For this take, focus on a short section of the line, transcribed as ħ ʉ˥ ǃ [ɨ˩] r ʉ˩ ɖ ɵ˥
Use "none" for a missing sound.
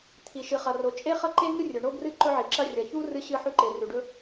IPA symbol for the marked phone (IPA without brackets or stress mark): e˩